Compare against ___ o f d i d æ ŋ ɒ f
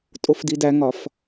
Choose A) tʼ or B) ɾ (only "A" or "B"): A